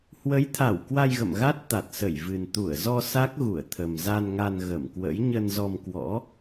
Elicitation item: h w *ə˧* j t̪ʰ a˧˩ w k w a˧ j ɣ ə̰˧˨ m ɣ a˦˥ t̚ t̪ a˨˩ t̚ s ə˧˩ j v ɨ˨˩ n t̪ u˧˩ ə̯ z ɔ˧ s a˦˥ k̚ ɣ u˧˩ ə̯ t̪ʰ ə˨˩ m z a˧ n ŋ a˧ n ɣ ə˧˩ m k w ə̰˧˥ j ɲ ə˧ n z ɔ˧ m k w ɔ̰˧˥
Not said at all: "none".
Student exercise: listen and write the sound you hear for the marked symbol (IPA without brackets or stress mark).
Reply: ə˨˦